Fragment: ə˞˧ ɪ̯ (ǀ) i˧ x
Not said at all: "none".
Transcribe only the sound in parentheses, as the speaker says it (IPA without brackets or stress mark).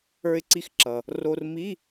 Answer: ǀ